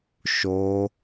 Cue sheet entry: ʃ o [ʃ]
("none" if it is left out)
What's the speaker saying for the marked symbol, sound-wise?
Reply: none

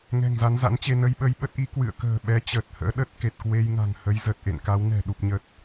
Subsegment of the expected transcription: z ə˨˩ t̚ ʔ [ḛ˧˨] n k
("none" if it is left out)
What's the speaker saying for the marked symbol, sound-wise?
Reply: ḛ˧˨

